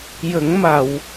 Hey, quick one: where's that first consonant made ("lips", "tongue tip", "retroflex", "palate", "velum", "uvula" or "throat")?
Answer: palate